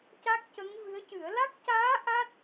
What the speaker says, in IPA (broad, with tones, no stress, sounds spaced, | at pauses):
c a˦˥ k̚ c ə˧˥ ŋ v ɨ˧˥ ə̯ c ɨ˨˩˦ ə̯ l a˦˥ k̚ c aː˧˥ ʔ a˦˥ t̚